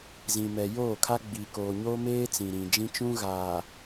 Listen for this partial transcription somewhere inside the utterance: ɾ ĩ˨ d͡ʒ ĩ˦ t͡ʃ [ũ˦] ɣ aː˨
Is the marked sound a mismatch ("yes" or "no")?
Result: no